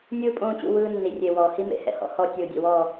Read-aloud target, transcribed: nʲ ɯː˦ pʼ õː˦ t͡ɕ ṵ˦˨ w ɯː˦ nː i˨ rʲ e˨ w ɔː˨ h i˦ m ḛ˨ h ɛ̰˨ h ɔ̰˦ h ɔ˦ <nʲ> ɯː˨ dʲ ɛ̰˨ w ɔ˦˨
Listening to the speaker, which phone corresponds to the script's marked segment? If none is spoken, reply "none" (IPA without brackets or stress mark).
tʲ